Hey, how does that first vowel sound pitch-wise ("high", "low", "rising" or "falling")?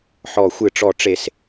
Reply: falling